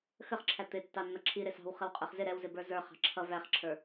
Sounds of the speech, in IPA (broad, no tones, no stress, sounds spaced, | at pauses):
x ə χ ǁʰ æ t̪ ɪ tː ɑ nː ʌ ǁʰ i ɾ ɪ s ɑ̤ w χ ə w qʼ ə˞ χ z ɪ ɾ ɛ w z ɪ b ə˞ z ə˞ χ ɑ̤ ǁʰ ʌ v æ χ ǁʰ ə˞